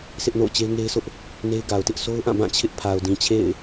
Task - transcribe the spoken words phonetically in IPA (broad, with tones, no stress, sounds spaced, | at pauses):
s ɪ˦ ʔ n o̰˦˨ ʊ̯ t͡ɕ e˦ ɪ̯ ŋ e˦ ɪ̯ sʰ ʊ˦ ʔ | n e˦ ɪ̯ ɡ a˨ ʊ̯ t ɪ˦ ʔ sʰ o˦ ʊ̯ ʔ ã˦˨ b ã˦˨ t͡ɕʰ ɪ˦ ʔ pʰ a˨ ʊ̯ d ĩ˨ t͡ɕʰ ḛ˦˨ ɪ̯